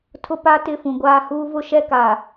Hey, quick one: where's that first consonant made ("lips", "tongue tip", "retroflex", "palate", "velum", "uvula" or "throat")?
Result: tongue tip